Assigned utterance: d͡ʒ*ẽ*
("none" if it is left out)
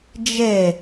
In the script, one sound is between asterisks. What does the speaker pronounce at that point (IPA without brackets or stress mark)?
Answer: e